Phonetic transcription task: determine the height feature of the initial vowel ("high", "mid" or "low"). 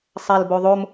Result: low